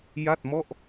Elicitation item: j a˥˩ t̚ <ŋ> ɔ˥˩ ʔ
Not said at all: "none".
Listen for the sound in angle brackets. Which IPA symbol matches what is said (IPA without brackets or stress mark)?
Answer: m